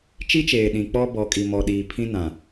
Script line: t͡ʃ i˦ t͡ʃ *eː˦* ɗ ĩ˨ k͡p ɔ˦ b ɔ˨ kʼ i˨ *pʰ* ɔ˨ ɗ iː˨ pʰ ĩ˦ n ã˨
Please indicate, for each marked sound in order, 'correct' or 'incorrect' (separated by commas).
incorrect, incorrect